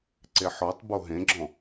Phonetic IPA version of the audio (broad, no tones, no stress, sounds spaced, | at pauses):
ǀ e ħ ɔ tˤ b o ɦ ẽ ɡ͡ǁ ɔ̃